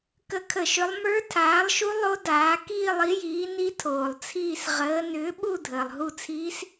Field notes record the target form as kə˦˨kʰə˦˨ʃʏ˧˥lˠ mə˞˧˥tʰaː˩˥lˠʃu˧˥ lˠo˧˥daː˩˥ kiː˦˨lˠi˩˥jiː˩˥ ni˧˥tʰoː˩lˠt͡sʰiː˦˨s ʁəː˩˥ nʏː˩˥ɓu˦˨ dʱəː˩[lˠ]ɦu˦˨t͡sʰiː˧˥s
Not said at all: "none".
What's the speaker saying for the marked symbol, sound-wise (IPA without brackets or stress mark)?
lˠ